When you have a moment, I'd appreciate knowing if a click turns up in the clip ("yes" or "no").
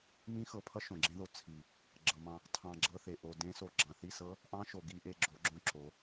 yes